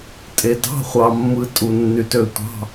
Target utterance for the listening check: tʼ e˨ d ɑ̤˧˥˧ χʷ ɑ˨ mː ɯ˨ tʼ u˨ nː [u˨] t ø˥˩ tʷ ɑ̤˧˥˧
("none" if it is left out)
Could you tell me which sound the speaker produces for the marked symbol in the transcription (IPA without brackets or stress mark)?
y˨